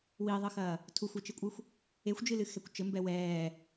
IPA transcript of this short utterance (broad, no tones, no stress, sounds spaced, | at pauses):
w iː ðˤ ɘ x ɐː | tʰ u xʷ e t͡ʃ ɨ kʷʼ ɨ xʷ | e xʷ d͡ʒ ɨ l ɨ x ɛ kʷ t͡ʃ ɘ m b ɛ w ɛː